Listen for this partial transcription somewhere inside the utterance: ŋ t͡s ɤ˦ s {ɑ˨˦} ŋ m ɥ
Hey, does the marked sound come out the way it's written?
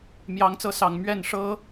no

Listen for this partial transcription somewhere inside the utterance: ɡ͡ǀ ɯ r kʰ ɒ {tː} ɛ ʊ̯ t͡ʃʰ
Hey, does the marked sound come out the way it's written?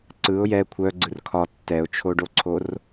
yes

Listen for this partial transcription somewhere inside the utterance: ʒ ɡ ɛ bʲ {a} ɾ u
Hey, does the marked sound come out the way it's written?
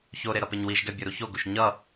no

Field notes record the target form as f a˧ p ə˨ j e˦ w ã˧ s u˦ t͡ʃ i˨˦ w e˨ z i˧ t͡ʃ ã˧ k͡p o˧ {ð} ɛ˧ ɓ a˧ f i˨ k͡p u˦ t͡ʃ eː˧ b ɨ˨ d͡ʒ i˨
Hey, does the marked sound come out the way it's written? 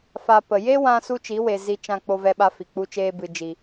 no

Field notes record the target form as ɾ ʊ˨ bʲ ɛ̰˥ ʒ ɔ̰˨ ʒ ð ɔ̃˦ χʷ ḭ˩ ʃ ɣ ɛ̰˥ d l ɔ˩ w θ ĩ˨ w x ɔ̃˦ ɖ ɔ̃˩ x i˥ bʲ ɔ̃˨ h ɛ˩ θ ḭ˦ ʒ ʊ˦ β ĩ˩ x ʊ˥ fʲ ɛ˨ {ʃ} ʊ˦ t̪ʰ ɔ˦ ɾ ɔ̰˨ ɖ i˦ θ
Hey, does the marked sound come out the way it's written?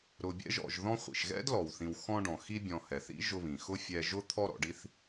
no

